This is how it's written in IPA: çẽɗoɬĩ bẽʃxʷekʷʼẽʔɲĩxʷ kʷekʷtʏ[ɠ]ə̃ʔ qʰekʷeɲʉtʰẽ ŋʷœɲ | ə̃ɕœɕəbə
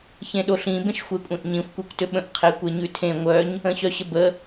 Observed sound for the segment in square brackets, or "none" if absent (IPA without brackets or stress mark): ɓ